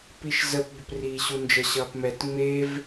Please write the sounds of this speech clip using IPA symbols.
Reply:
p i ʃ z ə p b ə p r iː ɕ u n d͡ʒ ə ɕ ʌː p m ɛ t ŋ͡m e v

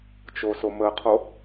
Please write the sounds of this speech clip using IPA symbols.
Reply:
t͡ʃ o s o m ə qʰ o

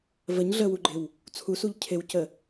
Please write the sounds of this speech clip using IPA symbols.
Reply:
v ə ɲ ɮ ə w u ɡ͡ǃ ɪ w | t͡sʰ u s u ʎ cʰ ɪ w c ə

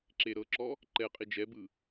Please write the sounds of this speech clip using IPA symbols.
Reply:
ǁ e ɾ ɤ ǁ ɔ | ǃ ɛ qʼ i d͡ʒ ɛ b ɯ

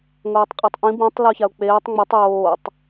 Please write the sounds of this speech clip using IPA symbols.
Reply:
ŋʷ eː tˤ qʼ ɤ tˤ ʔ ĩ b ĩ tˤ l o ç a ʊ̯ k͡p eː tˤ ŋ͡m o tˤ j oː tˤ

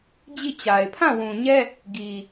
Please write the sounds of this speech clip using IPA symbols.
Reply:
d͡ʑ i˦˨ t͡ɕ a˨ ɪ̯ pʰ ã˦˨ w ũ˨ ɲ ɛ˦ | ɡ i˨

